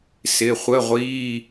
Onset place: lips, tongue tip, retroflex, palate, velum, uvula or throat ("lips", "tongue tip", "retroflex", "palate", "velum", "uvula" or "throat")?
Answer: tongue tip